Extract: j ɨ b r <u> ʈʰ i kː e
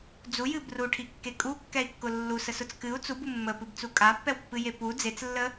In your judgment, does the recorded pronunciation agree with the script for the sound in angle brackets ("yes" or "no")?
yes